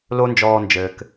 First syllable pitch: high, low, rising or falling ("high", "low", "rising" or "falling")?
high